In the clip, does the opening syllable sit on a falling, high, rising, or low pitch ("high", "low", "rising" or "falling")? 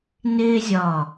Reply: high